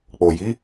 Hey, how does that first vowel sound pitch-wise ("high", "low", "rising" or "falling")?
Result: low